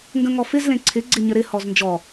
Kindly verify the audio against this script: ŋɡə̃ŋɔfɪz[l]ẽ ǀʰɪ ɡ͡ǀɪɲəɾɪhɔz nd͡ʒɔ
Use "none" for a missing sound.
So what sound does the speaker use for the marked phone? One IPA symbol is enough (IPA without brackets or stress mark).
l